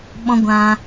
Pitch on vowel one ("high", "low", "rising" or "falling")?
high